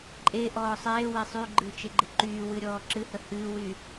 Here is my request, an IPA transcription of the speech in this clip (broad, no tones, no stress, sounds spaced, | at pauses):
ǃʼ e ʔ ɔː sˤ eː w e sˤ y ɡ͡ǃ ɨ t͡ʃ e ɡ͡ǃ ɪ ǃ yː w ɨ ɾʲ ɔː ǁ ɨ h ə h ɨː w y